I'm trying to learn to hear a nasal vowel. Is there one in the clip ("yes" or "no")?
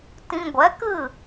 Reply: yes